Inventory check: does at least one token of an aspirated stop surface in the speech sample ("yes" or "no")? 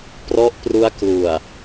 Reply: no